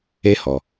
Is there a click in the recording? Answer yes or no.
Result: no